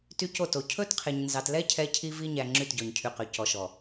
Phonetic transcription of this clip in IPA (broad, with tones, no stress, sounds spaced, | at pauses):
t y˦ c o˦˨ t o˨ cʰ ɵ˦ t qʰ e˨ ɲ n z ɑ˨ t l ɛ˦ cʰ ɛ˦ cʰ i˦ v i˦ ɲ æ˨ ŋ͡ǁ y˦˨ t ɟ ɔ˨ ɲ cʰ y˨ q ø˨ c ɔ˨ ʃ ɔ˨